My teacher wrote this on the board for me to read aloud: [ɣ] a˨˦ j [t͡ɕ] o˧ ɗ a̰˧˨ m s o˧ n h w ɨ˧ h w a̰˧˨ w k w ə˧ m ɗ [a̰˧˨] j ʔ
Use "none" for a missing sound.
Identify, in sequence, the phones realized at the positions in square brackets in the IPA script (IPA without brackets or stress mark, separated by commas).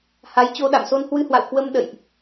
h, t͡ɕ, ə̰˧˨